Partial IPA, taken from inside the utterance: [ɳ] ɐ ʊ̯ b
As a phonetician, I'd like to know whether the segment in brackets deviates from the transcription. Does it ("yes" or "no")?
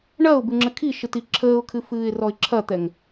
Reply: no